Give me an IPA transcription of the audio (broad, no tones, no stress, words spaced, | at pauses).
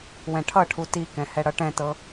wɛ̃ʈʰʌʈʰu tikɛ̃ hɛɽʌʈɛ̃tɤ